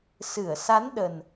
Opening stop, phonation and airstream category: implosive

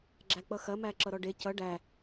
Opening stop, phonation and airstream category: click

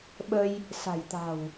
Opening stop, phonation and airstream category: implosive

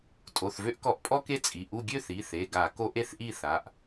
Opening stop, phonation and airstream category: ejective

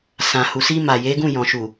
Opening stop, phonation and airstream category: plain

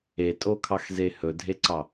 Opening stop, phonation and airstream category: ejective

